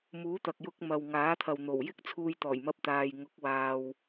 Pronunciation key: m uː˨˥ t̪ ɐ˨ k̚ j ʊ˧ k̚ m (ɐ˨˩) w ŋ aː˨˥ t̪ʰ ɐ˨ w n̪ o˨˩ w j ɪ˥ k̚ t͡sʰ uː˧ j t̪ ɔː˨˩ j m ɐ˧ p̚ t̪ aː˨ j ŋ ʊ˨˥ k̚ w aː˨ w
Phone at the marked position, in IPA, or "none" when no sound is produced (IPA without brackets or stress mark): ɐ˨